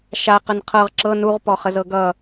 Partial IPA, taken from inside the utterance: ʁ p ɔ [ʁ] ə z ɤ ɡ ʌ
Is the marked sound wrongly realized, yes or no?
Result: yes